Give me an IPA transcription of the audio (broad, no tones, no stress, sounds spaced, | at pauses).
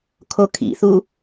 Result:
kʰ o kʰ ḭ θ u